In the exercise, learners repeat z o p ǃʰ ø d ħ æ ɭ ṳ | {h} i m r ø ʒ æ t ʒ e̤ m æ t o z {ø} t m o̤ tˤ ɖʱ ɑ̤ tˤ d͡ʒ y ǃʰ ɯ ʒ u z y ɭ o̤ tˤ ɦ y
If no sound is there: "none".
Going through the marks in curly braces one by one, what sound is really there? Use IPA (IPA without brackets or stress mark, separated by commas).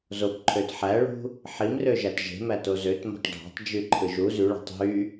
ħ, ø